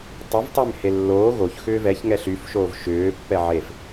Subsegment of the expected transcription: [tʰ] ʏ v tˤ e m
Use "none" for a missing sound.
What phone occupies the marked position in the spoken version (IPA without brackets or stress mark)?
tˤ